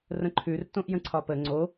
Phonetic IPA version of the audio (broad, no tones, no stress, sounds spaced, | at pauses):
r ə̃ ǃʰ ʉ r t õ ʔ j ə̃ ǀʰ ɒ p ə ŋ͡ǀ o